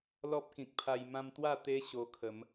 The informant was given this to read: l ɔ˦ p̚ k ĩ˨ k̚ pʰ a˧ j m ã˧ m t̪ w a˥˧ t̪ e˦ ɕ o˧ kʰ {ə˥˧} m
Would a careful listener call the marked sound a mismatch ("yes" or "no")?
yes